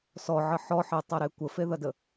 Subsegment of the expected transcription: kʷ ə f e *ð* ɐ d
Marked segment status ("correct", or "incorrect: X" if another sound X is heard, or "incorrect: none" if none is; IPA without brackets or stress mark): correct